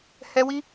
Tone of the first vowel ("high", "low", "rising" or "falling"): high